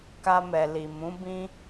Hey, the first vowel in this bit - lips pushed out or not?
no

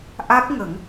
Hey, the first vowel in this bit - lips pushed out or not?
no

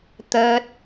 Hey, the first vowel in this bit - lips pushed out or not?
no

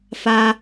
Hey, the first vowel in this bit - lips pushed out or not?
no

